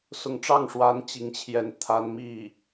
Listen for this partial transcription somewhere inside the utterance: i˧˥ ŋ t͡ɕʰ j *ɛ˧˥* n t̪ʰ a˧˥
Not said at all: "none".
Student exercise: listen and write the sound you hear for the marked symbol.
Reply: ɛ˥˩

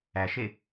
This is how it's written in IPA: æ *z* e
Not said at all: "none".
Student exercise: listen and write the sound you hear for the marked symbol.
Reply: ʃ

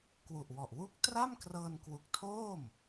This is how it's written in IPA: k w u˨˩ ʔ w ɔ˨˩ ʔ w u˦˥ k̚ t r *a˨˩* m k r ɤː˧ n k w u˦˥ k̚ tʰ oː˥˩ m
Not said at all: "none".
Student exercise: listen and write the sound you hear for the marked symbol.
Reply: a˥˩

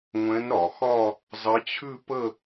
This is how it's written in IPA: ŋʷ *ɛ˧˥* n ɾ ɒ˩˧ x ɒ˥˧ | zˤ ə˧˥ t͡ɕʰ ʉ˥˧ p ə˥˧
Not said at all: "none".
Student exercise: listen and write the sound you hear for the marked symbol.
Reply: ɛ̃˧˥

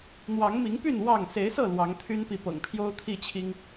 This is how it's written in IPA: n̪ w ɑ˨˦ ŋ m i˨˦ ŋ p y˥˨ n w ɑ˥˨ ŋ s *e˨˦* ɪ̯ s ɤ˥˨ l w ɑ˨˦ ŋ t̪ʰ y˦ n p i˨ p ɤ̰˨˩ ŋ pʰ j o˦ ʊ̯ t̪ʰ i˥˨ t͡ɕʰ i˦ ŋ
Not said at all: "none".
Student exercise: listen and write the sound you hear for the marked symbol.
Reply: e˨˦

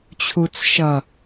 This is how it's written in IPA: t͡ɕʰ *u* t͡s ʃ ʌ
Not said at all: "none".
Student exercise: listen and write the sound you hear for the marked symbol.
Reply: u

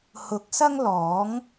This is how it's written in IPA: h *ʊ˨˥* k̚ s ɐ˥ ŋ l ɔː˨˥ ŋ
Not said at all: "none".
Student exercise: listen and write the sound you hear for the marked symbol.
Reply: ʊ˨˥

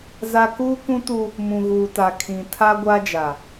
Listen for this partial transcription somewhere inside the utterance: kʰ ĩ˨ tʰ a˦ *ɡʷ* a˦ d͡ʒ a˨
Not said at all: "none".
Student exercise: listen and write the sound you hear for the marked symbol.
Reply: ɡʷ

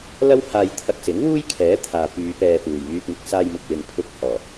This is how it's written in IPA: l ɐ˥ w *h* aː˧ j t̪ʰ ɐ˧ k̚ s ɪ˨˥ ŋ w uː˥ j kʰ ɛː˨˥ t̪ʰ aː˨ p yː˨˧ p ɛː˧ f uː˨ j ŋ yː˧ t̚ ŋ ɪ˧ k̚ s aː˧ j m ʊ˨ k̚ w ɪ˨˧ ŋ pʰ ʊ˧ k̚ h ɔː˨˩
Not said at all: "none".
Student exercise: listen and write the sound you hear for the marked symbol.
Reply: h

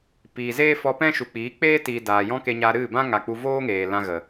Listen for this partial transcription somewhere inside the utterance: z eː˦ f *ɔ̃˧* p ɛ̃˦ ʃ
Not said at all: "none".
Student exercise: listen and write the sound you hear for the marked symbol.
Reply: ɔ˧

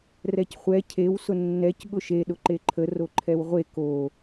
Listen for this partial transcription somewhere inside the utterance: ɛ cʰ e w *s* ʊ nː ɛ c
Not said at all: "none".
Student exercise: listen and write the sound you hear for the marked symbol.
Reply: s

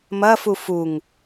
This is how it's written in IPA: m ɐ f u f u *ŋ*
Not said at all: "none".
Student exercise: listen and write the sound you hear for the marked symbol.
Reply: ŋ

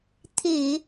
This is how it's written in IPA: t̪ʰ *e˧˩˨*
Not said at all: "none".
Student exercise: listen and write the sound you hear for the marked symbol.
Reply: e˧˩˨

